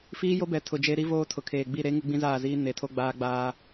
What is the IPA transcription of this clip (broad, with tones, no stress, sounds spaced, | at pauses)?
f iː˦ j o˦ b ɛ˨ tʰ ʊ˨ d͡ʒ e˦ ɾ i˦ v oː˦ tʰ ʊ˨ kʰ eː˨ ɡ͡b i˦˨ ɾ e˦ ŋ u˦ ɡ͡b ĩ˦ z aː˦˨ z iː˦ n e˨˦ tʰ o˦ ɡ͡b aː˦ ɡ͡b aː˦